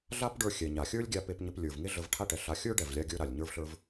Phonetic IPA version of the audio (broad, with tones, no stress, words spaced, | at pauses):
ɮa˥pɖə˞˧ xʲɛ˩ ɲa˩xʲə˞˥lʲɡʲa˧ pe˧pɲə˧p lʲə˞˩vŋe˥ ɮə˧vʈʰa˥ʈɛ˩ ɬa˧ xʲə˞˥ɖɛ˩vlʲa˧ɡʲə˞˧ ɾa˩lʲɲə˞˧vɬə˞˧v